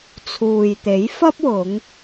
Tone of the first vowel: low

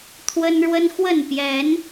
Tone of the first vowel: high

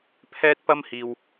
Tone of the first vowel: high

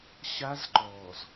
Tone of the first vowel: high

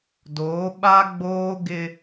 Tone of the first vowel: rising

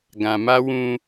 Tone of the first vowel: low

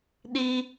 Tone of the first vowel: high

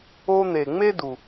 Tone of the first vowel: high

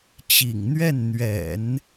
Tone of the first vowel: low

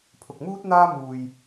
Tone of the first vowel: low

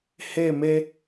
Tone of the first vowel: falling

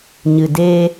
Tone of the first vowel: low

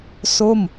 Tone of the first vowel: falling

